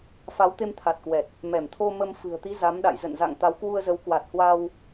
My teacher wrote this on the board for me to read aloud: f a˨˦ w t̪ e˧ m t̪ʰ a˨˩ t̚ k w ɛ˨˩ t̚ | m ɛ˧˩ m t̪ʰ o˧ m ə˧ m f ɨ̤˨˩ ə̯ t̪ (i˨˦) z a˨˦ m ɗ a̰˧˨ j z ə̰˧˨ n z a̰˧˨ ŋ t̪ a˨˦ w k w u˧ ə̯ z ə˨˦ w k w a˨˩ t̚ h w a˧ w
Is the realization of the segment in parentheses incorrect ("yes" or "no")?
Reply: no